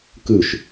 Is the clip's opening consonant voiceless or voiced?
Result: voiceless